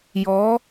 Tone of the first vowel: rising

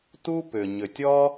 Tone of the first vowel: high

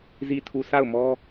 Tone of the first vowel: low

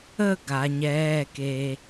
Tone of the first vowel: falling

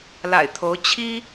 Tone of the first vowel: low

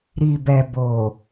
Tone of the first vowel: low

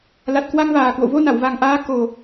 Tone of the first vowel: low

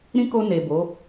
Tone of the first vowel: high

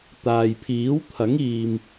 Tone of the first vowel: low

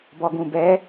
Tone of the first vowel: low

